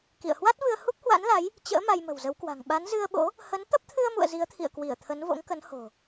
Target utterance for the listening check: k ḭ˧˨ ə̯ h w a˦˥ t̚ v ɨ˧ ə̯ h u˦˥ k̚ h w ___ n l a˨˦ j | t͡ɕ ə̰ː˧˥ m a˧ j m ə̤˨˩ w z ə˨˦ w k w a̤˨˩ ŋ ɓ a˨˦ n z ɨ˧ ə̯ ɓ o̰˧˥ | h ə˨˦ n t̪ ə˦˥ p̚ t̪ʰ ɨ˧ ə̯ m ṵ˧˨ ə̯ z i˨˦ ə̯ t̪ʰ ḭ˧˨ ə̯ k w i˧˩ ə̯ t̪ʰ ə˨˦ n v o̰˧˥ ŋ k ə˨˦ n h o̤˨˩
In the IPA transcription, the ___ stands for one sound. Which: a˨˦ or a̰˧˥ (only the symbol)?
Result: a̰˧˥